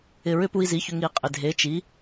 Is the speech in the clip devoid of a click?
yes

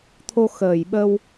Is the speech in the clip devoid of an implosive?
no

